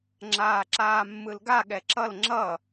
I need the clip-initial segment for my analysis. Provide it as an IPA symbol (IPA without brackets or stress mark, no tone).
ŋ͡ǁ